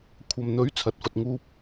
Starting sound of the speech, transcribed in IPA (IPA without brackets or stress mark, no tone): kʷʰ